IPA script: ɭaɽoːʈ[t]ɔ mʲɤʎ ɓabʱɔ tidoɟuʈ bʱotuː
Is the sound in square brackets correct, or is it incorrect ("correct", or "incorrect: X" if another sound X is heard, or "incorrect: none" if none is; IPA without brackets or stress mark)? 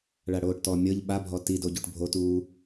correct